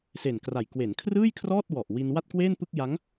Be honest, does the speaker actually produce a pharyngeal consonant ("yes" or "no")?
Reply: no